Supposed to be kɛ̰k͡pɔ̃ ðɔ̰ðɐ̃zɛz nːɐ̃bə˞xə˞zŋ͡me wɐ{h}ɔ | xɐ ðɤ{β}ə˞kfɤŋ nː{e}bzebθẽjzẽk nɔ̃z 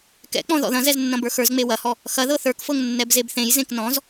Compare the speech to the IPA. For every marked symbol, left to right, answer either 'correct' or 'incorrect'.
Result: correct, incorrect, incorrect

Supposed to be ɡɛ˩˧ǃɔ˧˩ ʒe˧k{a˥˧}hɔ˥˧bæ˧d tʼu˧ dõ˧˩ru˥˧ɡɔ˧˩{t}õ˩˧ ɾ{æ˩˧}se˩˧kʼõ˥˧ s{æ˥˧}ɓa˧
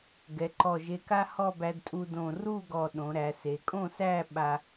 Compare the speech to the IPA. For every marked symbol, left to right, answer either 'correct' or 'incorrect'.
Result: incorrect, incorrect, correct, correct

